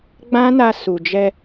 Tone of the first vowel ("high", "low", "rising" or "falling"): high